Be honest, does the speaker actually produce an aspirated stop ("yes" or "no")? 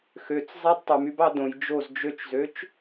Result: no